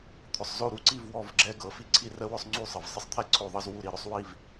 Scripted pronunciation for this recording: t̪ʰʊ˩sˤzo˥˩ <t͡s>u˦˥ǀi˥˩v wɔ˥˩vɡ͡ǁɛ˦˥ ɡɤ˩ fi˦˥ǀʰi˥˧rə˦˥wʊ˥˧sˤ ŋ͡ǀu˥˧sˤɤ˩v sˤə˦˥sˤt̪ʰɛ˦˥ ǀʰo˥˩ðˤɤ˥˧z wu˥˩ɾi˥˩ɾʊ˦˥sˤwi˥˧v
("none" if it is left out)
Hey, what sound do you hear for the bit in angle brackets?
ɾ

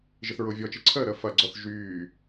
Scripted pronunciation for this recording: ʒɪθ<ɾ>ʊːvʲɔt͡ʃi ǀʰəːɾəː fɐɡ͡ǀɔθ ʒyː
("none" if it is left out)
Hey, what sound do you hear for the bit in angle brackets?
ɹ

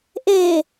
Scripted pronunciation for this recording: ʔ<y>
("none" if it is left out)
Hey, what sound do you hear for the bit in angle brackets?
e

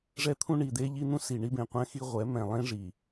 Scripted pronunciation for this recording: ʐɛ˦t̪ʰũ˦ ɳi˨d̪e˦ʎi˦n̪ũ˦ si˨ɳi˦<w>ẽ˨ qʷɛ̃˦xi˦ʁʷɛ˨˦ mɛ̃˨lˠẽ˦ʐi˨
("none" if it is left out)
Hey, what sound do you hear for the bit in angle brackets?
b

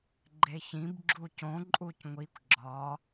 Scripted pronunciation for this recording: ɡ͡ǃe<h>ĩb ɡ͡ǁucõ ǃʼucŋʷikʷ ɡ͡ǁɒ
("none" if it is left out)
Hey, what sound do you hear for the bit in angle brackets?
ç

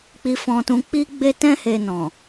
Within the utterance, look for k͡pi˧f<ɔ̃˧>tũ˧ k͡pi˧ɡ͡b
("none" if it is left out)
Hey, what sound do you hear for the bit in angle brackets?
ɔ̃˧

